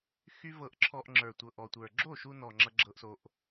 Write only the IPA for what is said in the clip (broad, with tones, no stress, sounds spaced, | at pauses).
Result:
x y˦ v ɤ˧ ʔ ǁʰ ɔ˧ ʔ ŋ͡ǁ ə˞˨ tʷ ɤ˨ ʔ ɔ˨ tʷ ə˞˨ ɡ͡ǁ o˦˨ ʃ u˧ n ɔ˨ ŋ͡ǁ ʌ˧ ɡ͡ǁ ɤ˦ ʔ s o˦ ʔ